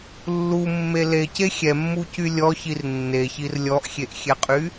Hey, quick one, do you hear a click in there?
no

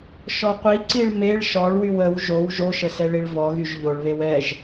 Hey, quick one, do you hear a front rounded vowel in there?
yes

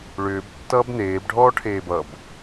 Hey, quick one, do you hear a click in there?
no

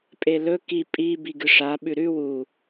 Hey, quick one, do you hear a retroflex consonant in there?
yes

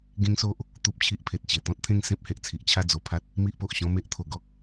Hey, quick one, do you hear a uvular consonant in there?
no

